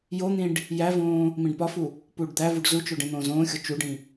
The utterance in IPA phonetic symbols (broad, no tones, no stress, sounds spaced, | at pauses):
j o n̪ ĩ ɖ | j æ v õː | m ĩ ɖ p ɒ f u | p uː ɖ d̪ æ v u ɖ z u t͡ʃ o ɖ ẽ n̪ õː z õː xʲ o t͡ʃ u ɖ ĩ